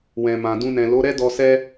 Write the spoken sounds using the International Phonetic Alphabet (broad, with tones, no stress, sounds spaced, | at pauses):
w ɛ̃˨ m ã˨ d ũ˧ n ɛ̃˨ l o˨˦ ɾ ɛ˦ d ɔ˧ s ɛ˦